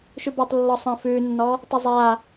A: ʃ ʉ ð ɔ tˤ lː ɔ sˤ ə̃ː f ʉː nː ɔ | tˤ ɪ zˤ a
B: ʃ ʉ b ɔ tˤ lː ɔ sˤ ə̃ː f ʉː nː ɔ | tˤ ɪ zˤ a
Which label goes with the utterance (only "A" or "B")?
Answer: B